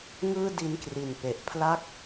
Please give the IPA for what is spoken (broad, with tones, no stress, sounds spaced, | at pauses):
ŋ ɯː˥˩ d i˧ n k r i˨˩ n p e˨˩ ʔ pʰ l a˥˩ k̚